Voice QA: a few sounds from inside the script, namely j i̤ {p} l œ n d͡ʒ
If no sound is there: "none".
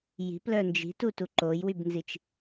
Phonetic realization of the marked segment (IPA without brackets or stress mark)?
p